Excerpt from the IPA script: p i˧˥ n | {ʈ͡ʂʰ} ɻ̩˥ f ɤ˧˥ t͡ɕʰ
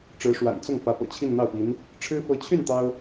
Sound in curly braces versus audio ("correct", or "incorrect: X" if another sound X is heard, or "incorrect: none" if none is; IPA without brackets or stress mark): correct